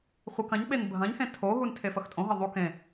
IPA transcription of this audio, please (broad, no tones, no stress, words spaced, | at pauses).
χʷɨk ɐ̃ɲɓen bʱɐ̃ɲhẽ tʰoɦun tʰefɐxtʼõɦɐ ðˤu kẽ